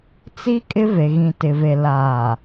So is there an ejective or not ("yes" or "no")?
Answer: yes